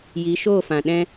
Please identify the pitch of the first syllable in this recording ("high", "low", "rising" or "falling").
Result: rising